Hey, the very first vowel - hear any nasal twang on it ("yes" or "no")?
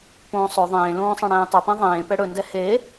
yes